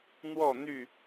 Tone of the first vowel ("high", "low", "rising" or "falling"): falling